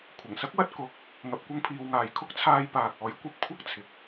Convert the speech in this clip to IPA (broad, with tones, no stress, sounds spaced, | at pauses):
kʷʰ ɐ˨˩ ŋ s ɐ˥ k̚ w ɐ˧ t̚ k ʊ˨˥ k̚ | ŋ ɐ˨ p̚ kʷ ɐ˧ ŋ pʰ iː˨ w ŋ aː˨ j kʰ ʊ˥ k̚ t͡sʰ aː˧ j p aː˨ k̚ ɔː˨˥ j kʷ ɐ˧ p̚ kʷʰ ɐ˥ k̚ t͡sʰ ɪ˨ k̚